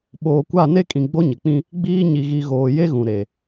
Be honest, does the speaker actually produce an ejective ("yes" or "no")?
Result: yes